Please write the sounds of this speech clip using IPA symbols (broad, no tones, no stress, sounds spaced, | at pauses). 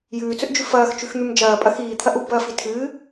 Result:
j ʉː t͡s ɵ ʔ d͡ʒ ʉ f ɐː x t͡ʃ ʉ x n̪ ʉ m d͡ʒ ɐː pʼ ɐ x iː t̪ʰ ɐ ʔ u b ɐː f i tʰ ɨː